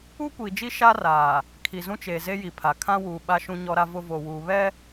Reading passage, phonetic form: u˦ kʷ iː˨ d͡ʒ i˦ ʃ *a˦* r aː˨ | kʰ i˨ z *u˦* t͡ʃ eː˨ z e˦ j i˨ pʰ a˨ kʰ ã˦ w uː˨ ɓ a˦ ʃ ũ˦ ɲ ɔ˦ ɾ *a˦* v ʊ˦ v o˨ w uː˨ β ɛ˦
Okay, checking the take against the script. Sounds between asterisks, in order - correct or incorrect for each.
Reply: correct, incorrect, correct

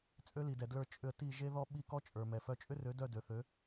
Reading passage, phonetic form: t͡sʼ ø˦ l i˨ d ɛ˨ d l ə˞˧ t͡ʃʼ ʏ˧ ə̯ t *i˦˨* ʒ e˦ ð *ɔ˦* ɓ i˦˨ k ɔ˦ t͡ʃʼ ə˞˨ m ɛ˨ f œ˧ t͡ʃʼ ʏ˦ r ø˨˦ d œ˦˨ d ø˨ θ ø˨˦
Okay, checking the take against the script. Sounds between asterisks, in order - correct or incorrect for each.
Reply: correct, correct

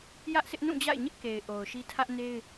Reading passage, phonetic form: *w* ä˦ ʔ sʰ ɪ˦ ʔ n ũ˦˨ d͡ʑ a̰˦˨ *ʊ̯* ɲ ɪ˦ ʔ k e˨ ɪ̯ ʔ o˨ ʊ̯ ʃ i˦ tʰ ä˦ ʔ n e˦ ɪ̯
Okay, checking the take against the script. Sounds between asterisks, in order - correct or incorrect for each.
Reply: incorrect, incorrect

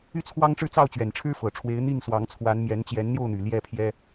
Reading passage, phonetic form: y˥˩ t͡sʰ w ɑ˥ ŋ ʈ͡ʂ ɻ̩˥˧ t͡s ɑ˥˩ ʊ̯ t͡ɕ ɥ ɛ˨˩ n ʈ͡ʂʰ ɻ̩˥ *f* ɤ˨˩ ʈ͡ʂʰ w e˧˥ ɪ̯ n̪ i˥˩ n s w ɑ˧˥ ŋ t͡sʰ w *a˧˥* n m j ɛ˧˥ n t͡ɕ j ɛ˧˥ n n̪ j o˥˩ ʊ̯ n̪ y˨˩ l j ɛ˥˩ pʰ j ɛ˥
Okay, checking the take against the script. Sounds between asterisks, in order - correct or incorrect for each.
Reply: correct, correct

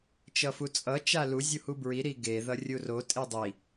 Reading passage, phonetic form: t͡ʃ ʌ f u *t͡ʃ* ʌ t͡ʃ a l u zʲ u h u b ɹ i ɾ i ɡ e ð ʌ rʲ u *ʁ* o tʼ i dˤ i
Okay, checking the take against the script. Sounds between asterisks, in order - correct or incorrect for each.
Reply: incorrect, incorrect

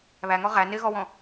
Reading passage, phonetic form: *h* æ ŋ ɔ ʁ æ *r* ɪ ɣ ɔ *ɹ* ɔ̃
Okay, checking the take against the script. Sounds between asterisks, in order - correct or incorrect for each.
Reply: incorrect, incorrect, incorrect

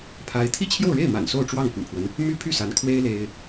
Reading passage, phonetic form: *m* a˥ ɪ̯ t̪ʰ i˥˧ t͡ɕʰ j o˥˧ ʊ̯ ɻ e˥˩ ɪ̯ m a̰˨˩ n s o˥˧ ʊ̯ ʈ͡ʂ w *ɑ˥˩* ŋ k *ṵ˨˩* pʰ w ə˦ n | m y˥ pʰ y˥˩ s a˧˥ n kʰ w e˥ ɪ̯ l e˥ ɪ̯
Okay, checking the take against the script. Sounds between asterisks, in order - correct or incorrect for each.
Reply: incorrect, correct, correct

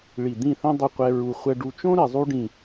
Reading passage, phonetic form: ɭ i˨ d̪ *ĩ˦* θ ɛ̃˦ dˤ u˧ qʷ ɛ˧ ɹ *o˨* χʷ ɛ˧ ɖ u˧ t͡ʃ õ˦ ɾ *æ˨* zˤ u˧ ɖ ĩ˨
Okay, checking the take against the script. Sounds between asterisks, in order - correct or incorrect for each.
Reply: incorrect, incorrect, incorrect

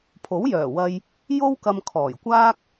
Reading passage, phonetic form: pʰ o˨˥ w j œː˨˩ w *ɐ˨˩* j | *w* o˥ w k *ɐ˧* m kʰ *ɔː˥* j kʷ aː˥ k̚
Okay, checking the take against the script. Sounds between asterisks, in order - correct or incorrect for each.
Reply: incorrect, incorrect, correct, incorrect

